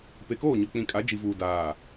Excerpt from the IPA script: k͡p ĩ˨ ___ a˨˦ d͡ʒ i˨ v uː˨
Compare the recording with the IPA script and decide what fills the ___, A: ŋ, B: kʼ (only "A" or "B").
B